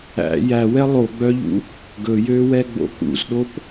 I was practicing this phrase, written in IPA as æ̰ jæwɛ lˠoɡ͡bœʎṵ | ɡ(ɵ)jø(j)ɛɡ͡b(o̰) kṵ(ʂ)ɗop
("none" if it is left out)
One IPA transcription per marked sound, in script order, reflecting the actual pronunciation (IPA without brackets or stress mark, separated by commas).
ɵ, w, o̰, z